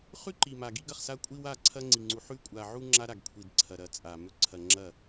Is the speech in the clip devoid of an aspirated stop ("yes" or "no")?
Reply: no